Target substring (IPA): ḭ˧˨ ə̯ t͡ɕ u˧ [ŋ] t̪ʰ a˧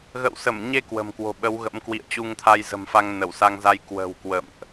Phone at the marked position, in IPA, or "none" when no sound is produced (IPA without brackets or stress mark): ŋ